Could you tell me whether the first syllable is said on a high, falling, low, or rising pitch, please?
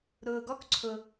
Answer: low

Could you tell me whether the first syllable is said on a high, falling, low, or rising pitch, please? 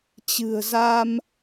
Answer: low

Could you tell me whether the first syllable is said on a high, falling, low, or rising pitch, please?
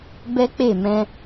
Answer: high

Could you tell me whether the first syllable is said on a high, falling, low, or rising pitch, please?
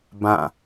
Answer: falling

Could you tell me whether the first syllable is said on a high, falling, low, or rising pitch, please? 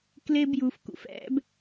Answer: high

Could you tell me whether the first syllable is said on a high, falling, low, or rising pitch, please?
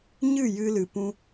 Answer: falling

